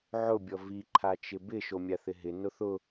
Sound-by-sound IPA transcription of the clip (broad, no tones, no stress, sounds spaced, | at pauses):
ʕ ʊ bʲ ɔ v i ǃʰ a t͡ʃ ɪ b ɪ ʃ o mʲ a θ ɪ ɦ ɪ n ʊ θ ʊ